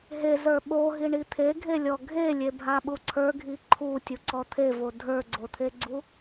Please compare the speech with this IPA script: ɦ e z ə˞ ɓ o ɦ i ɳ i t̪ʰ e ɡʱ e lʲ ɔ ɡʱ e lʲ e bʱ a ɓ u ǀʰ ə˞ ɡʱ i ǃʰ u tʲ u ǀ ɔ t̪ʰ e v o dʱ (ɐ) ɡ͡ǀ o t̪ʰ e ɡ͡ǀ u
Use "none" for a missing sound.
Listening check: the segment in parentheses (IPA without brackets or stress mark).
ə˞